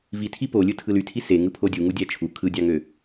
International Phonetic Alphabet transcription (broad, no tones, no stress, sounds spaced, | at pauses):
v i tʰ i p o lʲ ɯ tʰ ɯ l y tʰ i s e ŋ ɯ pʰ o dʲ u ŋ u dʲ æ t͡ʃʰ u kʰ ɯ dʲ ɑ ŋ ø